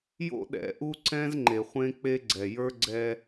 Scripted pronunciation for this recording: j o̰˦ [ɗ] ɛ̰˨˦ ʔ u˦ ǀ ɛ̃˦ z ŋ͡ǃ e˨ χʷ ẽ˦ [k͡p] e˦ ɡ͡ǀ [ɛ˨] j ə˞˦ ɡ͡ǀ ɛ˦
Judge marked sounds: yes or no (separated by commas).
yes, yes, yes